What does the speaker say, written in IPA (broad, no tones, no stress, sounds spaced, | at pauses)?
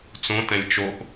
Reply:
t͡s õ t ɛ̃ lʲ t͡ʃ o ʔ